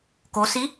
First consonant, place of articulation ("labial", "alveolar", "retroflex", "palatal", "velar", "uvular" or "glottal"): velar